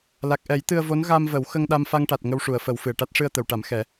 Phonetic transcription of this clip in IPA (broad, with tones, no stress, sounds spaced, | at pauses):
l a˨˩ k̚ ʔ ɛ˨˩˦ j t̪ ɨ˧ ə̯ v o˧˥ n ɣ a˧ m v ə˨˩˦ w x ə˧ ŋ ɗ a˧ m f a˧ ŋ ʈ a˨˩ t̚ ŋ ə˧ w ʂ u˨˩˨ ə̯ f ə˨˩˦ w f ɨ˨˩ ə̯ ʈ a˦˥ t̚ ʂ ɨ˧ ə̯ t̪ ə˨˩˨ w ʈ a˨˩˦ m x ɛ˨˩˦